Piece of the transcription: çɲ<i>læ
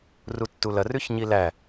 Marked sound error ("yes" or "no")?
no